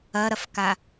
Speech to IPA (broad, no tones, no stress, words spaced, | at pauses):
ɐɾɐfka